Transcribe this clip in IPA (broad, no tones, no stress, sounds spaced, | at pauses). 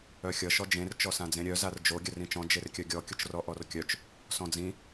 œ xʲ ʌ ʃ ɔ d͡ʒ ẽ r t͡ʃ ɔ s ã d͡z ẽ ɾʲ œ z a r d͡ʒ o ɡʲ œ r ĩ t͡ʃ ɔ̃ d͡ʒ e r kʲ œ ɡʲ ɔ kʲ ʊ t͡ʃ r ɔ ʔ ɔ r kʲ œ t͡ʃ | s ɔ̃ d͡z ĩ